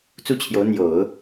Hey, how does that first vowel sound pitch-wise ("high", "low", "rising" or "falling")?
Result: falling